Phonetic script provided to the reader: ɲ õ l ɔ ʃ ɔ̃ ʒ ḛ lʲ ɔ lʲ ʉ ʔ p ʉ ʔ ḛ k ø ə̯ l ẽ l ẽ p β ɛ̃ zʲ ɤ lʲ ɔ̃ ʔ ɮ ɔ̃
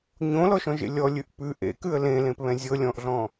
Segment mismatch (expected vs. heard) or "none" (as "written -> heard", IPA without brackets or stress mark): ø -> ʉ